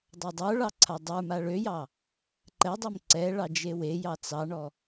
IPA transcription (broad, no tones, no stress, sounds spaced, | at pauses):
dˤ a dˤ ə˞ ɭ ɑ ǀʰ a dˤ ə˞ m a ɭ ø j ɑ | ǃ ɛ dˤ ɛ m ǀ ɛ ɭ ɑ d͡ʒ e w e j ɑ t͡s ɑ ɳ ɔ